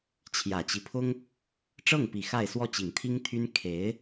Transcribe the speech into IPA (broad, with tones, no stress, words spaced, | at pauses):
t͡ɕʰjä˨˩t͡ɕi˦pʰʊ˥ŋ | ʈ͡ʂɤ˥˩ŋpi˨˩ xa˥˧ɪ̯swɔ˥˩t͡ɕi˨˩ŋ t̪ʰi˥ŋt̪ʰy˥n kʰe˧˥ɪ̯